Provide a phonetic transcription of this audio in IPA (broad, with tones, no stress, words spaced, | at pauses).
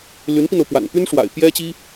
ly˧˥npi˧no˩ʊ̯pwa̰˨˩n py˥nʂwa̰˨˩ɪ̯ pjɛ˥t͡ɕi˥